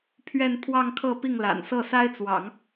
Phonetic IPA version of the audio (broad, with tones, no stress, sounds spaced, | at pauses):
pʰ ɥ ɛ˥˧ n pʰ w ɑ˥˧ ŋ kʰ ɤ˥˧ p i˥˩ ŋ l a̰˨˩ n s ɤ˥˩ s a˥ ɪ̯ t͡s w ɑ̰˨˩˦ ŋ